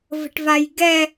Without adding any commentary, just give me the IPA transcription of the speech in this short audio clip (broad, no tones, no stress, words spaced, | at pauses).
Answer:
və̤ʈvajɡɛ